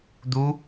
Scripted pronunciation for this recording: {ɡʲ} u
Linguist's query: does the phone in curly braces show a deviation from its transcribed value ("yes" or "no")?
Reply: yes